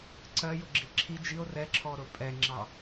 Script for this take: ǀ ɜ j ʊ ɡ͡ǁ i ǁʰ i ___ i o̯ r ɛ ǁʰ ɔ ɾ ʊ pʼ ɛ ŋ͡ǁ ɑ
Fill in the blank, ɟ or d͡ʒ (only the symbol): d͡ʒ